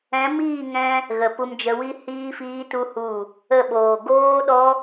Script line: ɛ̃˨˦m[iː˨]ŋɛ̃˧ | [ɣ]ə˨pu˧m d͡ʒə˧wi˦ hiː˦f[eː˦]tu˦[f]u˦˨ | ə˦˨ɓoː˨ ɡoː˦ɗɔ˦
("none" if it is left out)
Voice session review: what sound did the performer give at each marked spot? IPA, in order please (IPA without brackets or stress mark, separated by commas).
iː˦˨, ɣ, iː˦, h